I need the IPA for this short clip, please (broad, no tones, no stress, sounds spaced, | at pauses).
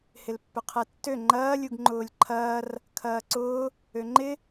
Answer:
h ɪ l pː ʏ qʰ ɛ tː ø ŋ͡ǃ ɐː lʲ u ɡ ŋ͡ǃ ʊː lʲ ǃʰ ɐː r | kʰ ɐː ǀ ʊː | ø ŋ͡ǃ ɪ